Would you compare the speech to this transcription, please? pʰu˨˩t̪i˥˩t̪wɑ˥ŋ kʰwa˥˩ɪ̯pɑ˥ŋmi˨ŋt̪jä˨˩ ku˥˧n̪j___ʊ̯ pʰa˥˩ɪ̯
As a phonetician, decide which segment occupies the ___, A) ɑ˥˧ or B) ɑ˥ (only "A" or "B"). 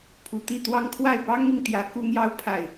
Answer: A